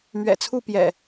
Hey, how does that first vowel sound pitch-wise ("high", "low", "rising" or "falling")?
low